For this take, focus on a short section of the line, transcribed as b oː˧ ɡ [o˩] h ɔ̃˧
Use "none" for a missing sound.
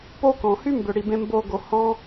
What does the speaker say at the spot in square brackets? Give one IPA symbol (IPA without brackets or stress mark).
o˩